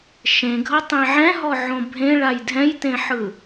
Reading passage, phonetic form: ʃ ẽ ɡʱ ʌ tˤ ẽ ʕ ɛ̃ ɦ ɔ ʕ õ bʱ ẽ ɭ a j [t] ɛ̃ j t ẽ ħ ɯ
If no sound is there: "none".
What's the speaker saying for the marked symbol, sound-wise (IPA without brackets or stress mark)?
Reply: dʱ